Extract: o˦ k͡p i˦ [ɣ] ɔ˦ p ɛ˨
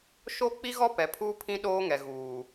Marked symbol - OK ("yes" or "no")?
yes